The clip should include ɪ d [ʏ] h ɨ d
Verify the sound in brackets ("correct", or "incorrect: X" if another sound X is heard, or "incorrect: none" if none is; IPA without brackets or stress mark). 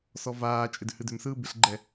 correct